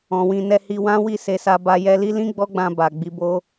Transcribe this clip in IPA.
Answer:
ɔ̃˨ w ĩ˧ n ɛ˧ h i˧ w ã˦ w i˦˨ s e˧ s a˧ b a˧ j ɛ˧ l i˦ l ĩ˦ ɡ͡b ɔ˦ ɡ͡b ã˧ b a˨ ɡ͡b i˧ b o˦

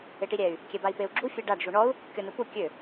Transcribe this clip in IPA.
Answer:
e ʈ i ɾʲ ɛ y̯ | kʲ ɛ b a i̯ p e u̯ ɡ͡ǁ u fʲ ɛ ɖ a ɖ ʒ u ɳ ɔ u̯ | kʲ ɔ n u p u kʲ ø

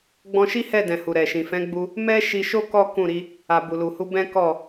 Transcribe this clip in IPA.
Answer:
ɡ͡b ɔ̃˧ ʃ i˦ h ɛ˦˨ d ɛ̃˨ h u˨ ɾ ɛ˨ ʃ ĩ˨ f ɛ̃˨˦ ɡ͡b u˧ | m ɛ˦ ʃ i˧ ʃ o˦ k ɔ˦ k ũ˦˨ ɾ i˧ | a˨ b u˨ l u˨ h u˧ b ɛ̃˦ k ɔ˦˨

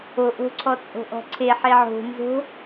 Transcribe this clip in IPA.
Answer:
o ʔ o̤ ǀʰ ɔ t͡sʼ o̤ ʔ ɔ̤ ǀʰ e ħ e ʕ o̤ n z o̤

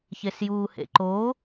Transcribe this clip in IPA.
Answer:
ç e s j uː h ḛ ǃ o

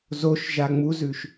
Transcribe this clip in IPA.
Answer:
z o ʃ ʒ a ŋ͡m u z ʉ ʃ

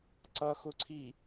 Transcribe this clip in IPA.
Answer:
ǀ ʌ x ʊ ǀʰ i

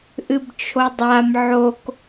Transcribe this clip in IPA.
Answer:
ʔ ɨ b t͡ʃʰ o dˤ a m ʕ o k

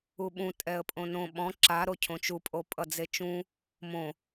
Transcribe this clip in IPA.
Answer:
u ɓ ũ tʼ ɛ ə̯ pʼ õ n õ ɓ ɔ̃ ǁ a ɾ o cʰ õ t͡ʃ u pʼ o pʼ ʌ d͡z e t͡ʃ ũ | m õ

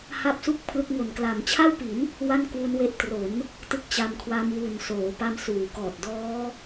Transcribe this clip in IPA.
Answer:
h a˥˩ p̚ s u˥˩ k̚ pʰ l ɯ˦˥ k̚ ŋ o˨˩ n k l a˩˦ m t͡ɕʰ a˥˩ w p i˩˦ n | w a˥˩ n k w u˦˥ n w e˦˥ ʔ t r o˩˦ n | t ɯ˦˥ k̚ t͡ɕ a˧ m kʰ w a˦˥ m w u˨˩ n s oː˩˦ p a˧ m s uː˩˦ k ɔː˨˩ t̚ d ɔː˦˥

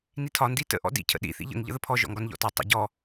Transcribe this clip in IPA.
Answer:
n i tʰ ɒ n d i t ə̰ ʔ ɔ̰ d ḭ cʰ ə̰ ɗ ḭ θ ḭ ʎ ə̰ ŋ ʎ ə̰ ð ə pʰ ɔ ʒ ɔ̰ ŋ ɡ ɒ n ʎ ɔ̰ t ɒ tˤ ə̰ ɟ ɔ

